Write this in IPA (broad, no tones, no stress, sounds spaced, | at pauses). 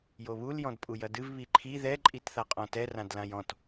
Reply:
j o β u l j ɔ̃ d pʼ u j ɐ d ɨ v β i ǃʰ i ð ɛ ǃʼ i t θ a qʼ ɔ̃ t ɛ r ã d l ã j ɔ̃ t